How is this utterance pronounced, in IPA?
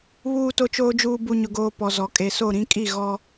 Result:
βuː˨to˨t͡ʃoː˨d͡ʒuː˨ bu˨ɲʊ˨ɡoː˨ pɔ˨zɔ˨ kʼe˨so˦˨ɾĩ˦ kʼi˦˨ ɣɔ˦

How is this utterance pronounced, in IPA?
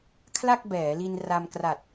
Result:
kʰla˥˩k̚bɛː˩˦li˧n ra˧mkra˨˩t̚

